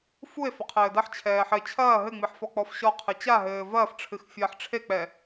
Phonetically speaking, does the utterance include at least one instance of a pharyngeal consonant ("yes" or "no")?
yes